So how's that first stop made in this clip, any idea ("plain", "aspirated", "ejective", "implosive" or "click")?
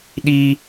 implosive